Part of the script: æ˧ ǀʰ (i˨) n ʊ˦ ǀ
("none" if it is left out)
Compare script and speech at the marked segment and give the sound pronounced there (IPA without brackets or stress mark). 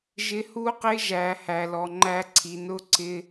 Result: i˨